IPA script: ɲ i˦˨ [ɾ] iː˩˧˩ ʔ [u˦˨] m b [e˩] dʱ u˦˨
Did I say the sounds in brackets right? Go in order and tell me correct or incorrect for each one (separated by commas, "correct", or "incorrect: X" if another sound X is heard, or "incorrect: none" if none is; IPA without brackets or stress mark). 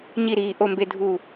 correct, incorrect: o˦˨, incorrect: e˦˨